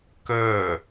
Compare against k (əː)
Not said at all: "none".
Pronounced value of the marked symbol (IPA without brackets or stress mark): əː